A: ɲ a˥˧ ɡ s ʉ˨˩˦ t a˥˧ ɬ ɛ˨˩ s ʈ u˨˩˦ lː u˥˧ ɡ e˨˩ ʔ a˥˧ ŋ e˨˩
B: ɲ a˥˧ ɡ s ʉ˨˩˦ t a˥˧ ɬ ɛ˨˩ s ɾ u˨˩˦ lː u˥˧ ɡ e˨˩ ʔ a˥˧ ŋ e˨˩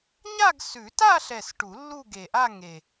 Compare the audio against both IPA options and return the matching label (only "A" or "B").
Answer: A